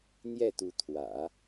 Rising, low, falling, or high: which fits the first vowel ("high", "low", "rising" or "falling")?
falling